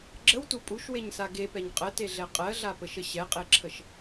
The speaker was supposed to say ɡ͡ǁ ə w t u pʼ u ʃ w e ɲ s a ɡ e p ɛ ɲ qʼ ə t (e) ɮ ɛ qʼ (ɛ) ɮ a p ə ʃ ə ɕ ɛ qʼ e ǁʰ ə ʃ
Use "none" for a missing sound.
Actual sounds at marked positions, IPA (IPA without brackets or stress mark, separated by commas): e, ɜ